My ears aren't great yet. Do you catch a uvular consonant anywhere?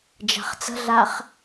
yes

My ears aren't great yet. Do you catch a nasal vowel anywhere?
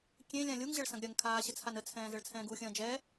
yes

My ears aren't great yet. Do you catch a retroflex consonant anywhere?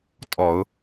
no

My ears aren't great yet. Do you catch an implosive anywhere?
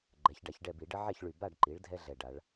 no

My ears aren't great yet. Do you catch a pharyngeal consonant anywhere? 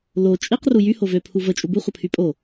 no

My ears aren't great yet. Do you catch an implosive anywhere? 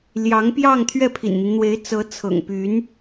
no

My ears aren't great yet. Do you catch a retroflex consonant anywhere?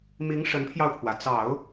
yes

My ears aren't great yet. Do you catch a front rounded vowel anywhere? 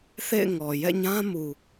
no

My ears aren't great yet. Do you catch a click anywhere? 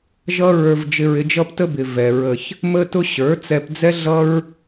no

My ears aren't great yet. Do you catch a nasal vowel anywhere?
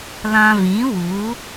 yes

